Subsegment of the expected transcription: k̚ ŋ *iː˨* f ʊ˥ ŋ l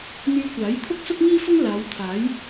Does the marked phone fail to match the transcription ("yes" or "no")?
yes